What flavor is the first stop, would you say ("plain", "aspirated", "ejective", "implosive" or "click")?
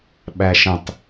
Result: implosive